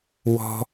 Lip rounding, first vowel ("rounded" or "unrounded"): rounded